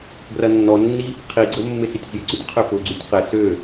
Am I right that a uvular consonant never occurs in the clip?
no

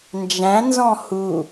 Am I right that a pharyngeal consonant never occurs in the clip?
yes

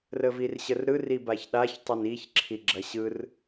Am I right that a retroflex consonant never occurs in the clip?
yes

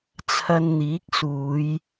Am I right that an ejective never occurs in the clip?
yes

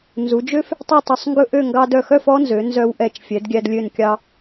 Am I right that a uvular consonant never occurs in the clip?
yes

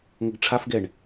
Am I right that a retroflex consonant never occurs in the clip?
no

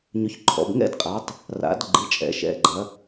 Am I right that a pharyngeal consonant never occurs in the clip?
yes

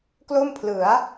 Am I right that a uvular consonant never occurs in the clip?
yes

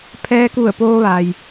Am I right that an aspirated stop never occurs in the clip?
no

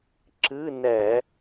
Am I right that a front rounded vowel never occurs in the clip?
yes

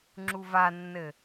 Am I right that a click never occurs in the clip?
no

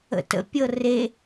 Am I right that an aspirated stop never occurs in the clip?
yes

